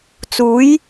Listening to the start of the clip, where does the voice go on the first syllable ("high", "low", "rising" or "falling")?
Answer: rising